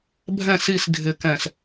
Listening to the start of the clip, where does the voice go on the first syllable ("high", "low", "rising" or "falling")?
falling